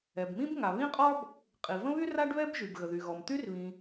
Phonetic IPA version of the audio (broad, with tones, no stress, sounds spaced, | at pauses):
ɛ˩ b m ĩ˥ b ŋ a˩ β ĩ˥ qʼ ɔ˥ b | qʼ i˩ v ə̃˥ β y˥ r a˥ ɖ β ɛ˥ b ʒ y˩ b ɣ ə˩ ð y˩ ɣ ɔ˩ m t̪ y˥ r β ĩ˩